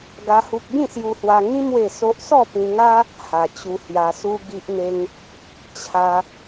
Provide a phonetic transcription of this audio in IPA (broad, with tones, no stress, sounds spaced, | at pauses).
ɡ a˦ h u˦ k̚ ɡ ĩ˥˧ s j u˧ h w a˧ ŋ ĩ˦ m w e˥˧ s o˦ ʔ s ɔ˥˧ p ĩ˧ ŋ a˦ | h a˧ t͡ɕ u˧ h j a˧ s u˦ ɡ i˦ ʔ n̪ e˦ ŋ | t͡ɕʰ a˦